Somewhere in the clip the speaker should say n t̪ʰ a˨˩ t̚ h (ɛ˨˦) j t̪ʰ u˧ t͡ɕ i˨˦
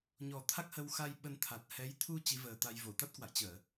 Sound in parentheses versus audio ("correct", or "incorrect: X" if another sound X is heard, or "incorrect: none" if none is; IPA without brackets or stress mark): correct